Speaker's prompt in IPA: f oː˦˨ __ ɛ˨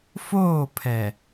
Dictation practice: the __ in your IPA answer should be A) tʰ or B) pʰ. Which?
B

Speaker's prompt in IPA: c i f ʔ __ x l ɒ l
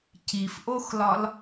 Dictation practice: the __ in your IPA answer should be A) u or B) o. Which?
B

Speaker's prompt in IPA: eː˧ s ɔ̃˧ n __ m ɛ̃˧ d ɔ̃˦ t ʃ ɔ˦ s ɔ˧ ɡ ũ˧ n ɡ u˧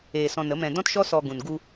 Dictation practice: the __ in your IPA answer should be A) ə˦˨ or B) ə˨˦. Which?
B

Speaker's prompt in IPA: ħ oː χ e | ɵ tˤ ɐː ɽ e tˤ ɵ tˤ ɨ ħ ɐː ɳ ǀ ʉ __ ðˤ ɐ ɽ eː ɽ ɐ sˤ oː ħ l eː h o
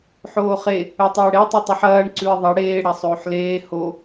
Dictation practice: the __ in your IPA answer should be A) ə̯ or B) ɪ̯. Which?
B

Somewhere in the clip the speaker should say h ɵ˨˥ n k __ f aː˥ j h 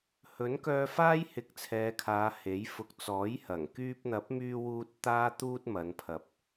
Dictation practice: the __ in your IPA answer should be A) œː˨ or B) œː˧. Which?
B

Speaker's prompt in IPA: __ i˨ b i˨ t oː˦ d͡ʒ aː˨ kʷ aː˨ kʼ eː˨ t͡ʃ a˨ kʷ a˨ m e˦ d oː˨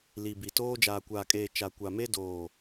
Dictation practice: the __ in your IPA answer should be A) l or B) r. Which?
A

